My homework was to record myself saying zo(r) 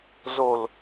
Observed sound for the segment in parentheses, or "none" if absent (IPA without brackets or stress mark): l